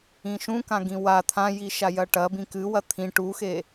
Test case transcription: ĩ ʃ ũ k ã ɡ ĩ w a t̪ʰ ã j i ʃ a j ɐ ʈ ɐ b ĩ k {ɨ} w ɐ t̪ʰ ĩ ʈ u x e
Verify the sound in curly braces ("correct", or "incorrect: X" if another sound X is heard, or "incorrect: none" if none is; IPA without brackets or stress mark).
correct